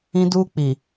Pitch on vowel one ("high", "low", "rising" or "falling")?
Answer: high